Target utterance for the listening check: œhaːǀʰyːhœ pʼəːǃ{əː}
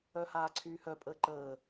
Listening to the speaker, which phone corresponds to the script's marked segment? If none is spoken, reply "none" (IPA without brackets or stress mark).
əː